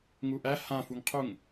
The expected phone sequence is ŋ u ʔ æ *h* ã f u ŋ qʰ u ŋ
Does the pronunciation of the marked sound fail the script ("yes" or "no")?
no